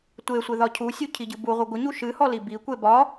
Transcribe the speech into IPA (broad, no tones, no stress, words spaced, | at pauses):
tʷesʷɪ ðɒcʰusʲu cʰiɟɨbuʁʷɪ ɡʷɪɲu ʃɨhɔ libikʷe bɒ